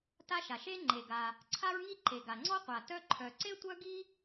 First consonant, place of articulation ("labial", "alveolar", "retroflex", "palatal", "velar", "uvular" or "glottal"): alveolar